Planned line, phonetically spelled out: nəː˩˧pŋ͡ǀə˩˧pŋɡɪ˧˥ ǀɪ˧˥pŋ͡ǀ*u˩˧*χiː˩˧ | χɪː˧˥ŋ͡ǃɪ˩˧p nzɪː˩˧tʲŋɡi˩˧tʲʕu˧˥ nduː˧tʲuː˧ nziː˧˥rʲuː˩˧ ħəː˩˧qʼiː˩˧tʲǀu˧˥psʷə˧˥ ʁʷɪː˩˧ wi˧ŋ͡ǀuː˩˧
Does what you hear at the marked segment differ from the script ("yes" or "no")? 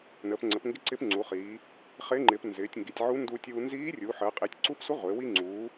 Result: no